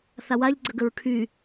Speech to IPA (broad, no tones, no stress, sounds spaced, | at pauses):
θ a w a ʎ ɡ͡ǀ ə ɡ ə ɹ kʰ y